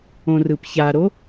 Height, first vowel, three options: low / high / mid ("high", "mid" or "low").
mid